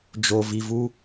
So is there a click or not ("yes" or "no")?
no